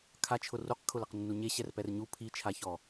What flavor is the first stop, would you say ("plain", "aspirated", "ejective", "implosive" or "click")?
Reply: aspirated